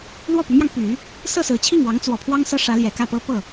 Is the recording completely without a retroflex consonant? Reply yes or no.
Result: no